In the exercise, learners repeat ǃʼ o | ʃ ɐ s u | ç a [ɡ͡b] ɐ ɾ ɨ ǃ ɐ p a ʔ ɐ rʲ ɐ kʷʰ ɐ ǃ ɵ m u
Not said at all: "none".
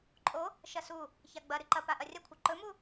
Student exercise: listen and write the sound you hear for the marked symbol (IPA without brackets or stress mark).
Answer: ɡ͡b